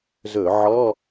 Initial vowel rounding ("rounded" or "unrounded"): rounded